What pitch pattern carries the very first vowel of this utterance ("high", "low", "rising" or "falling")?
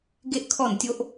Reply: high